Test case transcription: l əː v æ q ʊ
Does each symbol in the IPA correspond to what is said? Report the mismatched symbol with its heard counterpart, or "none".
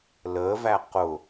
none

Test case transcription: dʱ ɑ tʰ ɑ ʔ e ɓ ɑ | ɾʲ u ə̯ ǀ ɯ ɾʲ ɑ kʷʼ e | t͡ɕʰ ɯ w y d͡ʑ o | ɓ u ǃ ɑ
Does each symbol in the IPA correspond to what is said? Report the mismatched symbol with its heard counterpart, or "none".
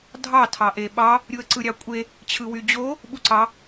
ǃ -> ǀ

